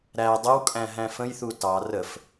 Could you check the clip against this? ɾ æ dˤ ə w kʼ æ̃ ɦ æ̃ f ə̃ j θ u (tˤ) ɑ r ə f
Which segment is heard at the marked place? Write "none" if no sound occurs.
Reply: t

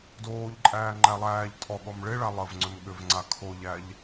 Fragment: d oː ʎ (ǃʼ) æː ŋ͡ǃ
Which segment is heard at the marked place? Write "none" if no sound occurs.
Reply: ǃʼ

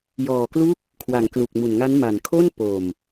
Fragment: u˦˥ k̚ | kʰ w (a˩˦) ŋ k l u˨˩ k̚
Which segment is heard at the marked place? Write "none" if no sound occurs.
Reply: a˩˦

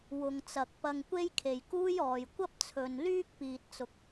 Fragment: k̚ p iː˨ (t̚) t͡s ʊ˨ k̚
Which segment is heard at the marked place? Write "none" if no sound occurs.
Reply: t̚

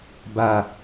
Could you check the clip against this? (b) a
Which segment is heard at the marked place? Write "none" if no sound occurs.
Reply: b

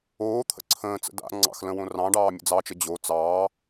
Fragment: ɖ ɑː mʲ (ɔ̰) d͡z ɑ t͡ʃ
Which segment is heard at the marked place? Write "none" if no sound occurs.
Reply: ə̰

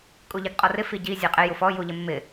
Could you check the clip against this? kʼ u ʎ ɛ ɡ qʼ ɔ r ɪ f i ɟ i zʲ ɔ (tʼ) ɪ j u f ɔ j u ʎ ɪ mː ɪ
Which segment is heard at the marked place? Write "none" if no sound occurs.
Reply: qʼ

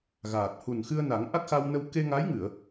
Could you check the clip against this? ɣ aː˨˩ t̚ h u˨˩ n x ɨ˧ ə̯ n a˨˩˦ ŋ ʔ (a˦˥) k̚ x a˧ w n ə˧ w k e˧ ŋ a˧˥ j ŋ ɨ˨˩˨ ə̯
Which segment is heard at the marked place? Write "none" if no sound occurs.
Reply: a˦˥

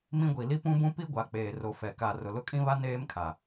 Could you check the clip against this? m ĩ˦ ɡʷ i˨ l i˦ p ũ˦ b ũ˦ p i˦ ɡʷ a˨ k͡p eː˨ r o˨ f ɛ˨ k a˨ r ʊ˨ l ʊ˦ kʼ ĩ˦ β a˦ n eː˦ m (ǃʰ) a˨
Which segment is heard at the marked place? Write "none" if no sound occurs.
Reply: kʰ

